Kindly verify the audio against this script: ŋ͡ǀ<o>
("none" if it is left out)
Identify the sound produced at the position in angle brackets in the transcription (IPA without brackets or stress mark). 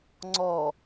ɔ